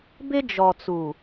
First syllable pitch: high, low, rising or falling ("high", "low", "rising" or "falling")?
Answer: high